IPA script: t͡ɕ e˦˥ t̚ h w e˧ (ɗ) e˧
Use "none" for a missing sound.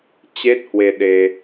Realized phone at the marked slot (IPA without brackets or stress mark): ɗ